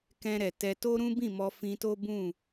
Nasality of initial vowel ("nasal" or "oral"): nasal